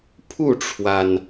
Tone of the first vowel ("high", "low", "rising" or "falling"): falling